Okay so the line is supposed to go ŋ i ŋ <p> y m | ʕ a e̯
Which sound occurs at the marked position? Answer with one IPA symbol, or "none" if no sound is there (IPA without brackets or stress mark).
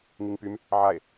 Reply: p